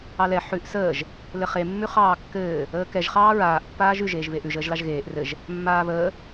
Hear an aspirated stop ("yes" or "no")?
no